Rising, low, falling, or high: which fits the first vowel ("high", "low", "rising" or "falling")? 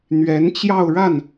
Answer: rising